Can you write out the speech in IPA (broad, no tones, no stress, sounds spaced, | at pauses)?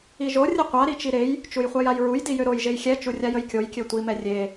i ʒ o rʲ ə qʷ a ɾ i t͡ʃ i ɾ e j | t͡ʃ u j χʷ a j a j ɹ u j d i j ø ɾ o j ʒ e j xʲ ɛ t͡ʃ u rʲ a j ə j kʲ o j kʲ ø tʷ i m ɛ rʲ e